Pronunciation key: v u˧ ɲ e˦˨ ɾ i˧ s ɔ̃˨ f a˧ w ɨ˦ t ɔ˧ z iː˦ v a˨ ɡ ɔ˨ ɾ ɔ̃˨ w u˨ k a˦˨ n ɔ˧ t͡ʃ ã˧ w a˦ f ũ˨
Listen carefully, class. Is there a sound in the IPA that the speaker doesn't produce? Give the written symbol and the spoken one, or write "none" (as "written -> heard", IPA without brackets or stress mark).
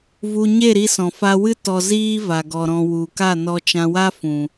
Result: none